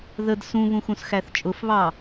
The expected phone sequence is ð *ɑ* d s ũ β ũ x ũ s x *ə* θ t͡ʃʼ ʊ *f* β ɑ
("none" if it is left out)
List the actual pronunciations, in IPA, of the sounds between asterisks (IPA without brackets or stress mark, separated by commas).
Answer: ə, æ, f